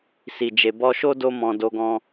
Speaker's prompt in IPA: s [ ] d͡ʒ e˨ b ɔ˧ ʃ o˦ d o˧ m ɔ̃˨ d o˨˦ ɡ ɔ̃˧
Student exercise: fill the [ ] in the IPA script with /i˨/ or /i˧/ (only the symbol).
i˨